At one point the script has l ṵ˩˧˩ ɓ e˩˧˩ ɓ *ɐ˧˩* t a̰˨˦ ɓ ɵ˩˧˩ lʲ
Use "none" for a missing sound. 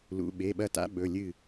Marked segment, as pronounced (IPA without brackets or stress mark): ɐ˧˩